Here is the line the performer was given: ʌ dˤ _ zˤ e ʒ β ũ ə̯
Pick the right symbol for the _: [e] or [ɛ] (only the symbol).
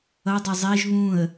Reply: ɛ